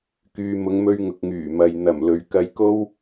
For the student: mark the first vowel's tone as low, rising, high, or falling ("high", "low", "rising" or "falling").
low